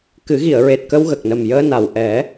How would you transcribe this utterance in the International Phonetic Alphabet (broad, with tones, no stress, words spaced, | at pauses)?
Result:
kɨ˨˩˦ɣi˨˩˨ə̯ɹe˨˩t̚ kə˧wɣə˨˩k̚nə˨˩mjəː˧ na˨˩w ʔɛ˨˩˦